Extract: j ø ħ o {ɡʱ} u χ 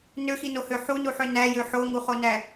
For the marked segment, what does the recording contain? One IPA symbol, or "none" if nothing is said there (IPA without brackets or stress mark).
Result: ŋ